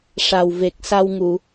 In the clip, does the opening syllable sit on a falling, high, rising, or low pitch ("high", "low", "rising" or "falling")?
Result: low